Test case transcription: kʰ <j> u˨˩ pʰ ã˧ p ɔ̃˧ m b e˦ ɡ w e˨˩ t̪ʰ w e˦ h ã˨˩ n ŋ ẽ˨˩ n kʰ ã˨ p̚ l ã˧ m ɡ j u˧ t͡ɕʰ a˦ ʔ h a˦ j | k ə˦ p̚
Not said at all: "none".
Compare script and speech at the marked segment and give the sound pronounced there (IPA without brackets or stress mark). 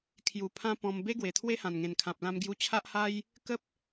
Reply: j